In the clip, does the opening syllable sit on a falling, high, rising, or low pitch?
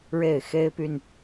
falling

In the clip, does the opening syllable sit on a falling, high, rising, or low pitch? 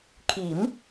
rising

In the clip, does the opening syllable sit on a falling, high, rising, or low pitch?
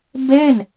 falling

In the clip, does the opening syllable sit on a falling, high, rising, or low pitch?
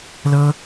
high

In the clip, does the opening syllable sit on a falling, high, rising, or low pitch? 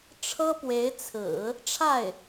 high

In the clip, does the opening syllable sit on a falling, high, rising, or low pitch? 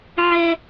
high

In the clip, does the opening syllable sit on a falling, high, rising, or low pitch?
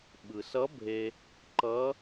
low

